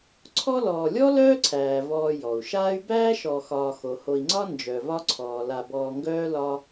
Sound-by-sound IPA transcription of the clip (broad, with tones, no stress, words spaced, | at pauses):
ǀʰɔ˦lɔː˨lʲɔ˥ lœː˥ǀʰæː˩vɔː˨ jɔ˩u̯ʃaː˥y̯ bæː˥ ʃɔ˨xɒː˨ xo˩ho˨i̯ŋ͡ǀɒ˥ nd͡ʒœ˨vɒ˥ǀʰɔː˩ la˨bɔː˨ŋɡœː˦ lɒ˦